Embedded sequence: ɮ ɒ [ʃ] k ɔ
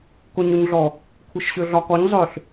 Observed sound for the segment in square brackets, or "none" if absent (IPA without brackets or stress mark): none